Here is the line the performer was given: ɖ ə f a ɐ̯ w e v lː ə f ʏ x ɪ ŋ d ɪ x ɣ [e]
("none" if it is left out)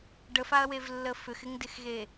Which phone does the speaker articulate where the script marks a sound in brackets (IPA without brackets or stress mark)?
e